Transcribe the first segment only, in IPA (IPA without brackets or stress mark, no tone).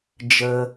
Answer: d͡ʒ